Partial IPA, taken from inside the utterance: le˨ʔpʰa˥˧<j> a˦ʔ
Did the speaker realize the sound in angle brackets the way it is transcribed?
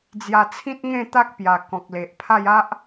yes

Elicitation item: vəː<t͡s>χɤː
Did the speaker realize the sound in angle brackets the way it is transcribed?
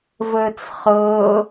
yes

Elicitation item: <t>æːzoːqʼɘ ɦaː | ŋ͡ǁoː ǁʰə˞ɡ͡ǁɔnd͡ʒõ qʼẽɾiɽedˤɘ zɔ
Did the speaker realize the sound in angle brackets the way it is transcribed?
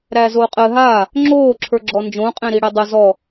no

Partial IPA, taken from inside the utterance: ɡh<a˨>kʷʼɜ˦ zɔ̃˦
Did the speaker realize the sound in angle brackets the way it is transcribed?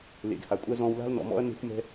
yes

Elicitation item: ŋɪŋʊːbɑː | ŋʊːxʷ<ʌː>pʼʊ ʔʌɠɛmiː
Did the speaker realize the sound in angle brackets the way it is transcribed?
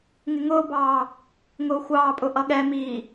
no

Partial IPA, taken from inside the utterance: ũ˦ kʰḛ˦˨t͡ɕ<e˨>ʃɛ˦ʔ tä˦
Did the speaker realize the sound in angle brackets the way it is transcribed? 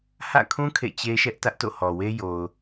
no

